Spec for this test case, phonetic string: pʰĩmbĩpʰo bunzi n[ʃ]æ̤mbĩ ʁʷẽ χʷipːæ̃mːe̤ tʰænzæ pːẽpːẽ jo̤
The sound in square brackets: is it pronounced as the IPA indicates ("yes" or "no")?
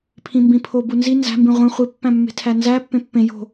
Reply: no